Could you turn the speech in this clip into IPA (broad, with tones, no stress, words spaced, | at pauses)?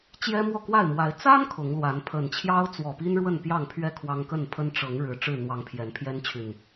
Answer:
t͡ɕjɛ˦mwɔ˥˨kwa˥˨ɪ̯mwa˨˦ɪ̯ t͡sa˦n kʰʊ˨˦ŋlwa˨˦n pʰə˨˩n t͡ɕʰjɑ˦ʊ̯t͡swɔ˨˩pi˦n ɻwə˥˨npjɑ˥˨ŋpʰɥɛ˥˨ kʰwɑ˦ŋ kə˥˨n pʰə˦n ʈ͡ʂɤ˨˦ŋɻɻ̩˨˩ ʈ͡ʂɻ̩˥˨n̪wɑ˨˦ŋ pʰjɛ˨˦npʰjɛ˦nt͡ɕʰy˨˩n